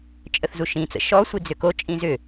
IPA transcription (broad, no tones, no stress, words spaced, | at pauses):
t͡ʃʼəθzuʃĩt͡sə̰ ʃɔ sʷid͡zʏkot͡ʃʼĩ zʏ